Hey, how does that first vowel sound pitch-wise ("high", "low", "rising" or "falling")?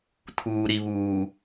low